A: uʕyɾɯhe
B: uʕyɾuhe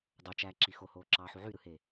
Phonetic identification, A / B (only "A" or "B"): A